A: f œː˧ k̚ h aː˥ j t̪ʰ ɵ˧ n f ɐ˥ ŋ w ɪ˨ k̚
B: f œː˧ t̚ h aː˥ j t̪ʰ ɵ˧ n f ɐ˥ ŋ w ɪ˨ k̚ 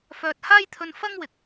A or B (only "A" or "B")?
B